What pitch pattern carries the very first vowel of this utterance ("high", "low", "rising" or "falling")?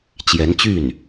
rising